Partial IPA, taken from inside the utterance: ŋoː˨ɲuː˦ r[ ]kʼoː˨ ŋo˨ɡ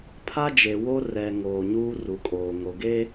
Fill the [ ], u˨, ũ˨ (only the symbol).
u˨